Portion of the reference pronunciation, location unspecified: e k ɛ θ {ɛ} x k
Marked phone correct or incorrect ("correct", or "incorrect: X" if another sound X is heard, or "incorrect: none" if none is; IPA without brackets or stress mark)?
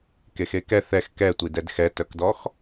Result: correct